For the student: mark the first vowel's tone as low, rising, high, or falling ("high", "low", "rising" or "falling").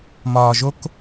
low